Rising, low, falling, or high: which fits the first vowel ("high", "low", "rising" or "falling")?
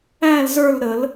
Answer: falling